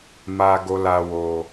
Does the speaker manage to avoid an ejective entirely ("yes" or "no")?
yes